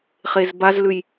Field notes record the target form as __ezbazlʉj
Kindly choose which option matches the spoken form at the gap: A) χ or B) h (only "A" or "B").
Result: A